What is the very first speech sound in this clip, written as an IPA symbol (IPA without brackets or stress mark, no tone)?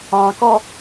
ɑ̃